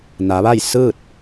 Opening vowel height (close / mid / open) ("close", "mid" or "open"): open